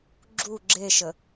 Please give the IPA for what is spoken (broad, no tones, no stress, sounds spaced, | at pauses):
ɡ͡ǁ u ɡ͡ǁ e ʃ ə